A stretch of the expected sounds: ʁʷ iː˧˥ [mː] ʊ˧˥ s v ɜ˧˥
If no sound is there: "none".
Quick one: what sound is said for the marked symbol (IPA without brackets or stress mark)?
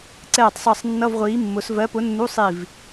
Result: mː